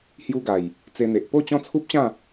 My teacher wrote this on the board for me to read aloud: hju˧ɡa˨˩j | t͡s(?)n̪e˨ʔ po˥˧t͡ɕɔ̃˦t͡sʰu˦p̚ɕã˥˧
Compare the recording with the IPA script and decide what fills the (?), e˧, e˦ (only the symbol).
e˧